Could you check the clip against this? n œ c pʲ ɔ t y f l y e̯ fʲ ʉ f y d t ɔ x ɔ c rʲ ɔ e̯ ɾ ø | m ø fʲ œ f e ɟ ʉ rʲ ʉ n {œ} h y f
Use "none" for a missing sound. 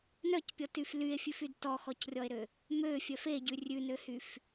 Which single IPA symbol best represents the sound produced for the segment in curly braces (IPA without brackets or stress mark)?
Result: ø